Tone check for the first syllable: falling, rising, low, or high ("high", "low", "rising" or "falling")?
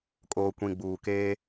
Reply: low